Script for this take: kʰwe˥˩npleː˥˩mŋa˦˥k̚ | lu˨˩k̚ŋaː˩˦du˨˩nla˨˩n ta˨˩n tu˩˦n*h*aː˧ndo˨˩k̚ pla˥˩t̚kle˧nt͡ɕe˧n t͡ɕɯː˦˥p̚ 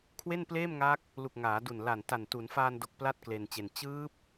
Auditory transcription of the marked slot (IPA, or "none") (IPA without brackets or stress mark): f